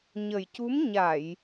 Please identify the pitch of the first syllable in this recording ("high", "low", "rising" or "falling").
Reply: low